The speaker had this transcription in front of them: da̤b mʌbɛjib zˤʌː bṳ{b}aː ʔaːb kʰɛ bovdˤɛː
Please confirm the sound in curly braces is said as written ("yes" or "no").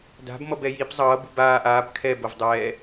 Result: yes